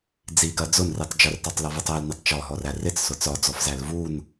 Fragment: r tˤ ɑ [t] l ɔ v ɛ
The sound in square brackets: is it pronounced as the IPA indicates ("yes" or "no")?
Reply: no